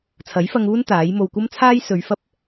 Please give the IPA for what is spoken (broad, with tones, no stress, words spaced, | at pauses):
t͡sʰɐ˨˥jfɐ˧ŋuː˥n t̪aː˨˥jmo˧w kʷɐ˥mt͡sʰaː˥j sɵ˨˧ɥfɐ˥p̚